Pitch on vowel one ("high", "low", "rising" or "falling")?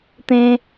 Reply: high